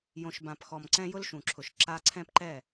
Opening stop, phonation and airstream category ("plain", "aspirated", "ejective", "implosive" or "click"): plain